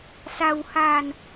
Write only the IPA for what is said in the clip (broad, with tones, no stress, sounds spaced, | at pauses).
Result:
s a˧ w h a˧ n